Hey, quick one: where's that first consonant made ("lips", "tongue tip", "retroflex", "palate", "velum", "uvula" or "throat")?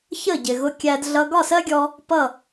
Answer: palate